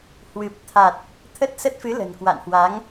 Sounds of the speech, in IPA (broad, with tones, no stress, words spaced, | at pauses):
hwɨ˨˩p̚t̪ʰa˨˩t̚ | t̪ʰə˦˥t̚sə˦˥t̚fɨ˨˦ lə̤˨˩nkwa̰˧˨nhwa˨˦ŋ